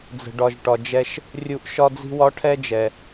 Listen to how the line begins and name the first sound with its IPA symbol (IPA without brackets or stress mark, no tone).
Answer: d͡z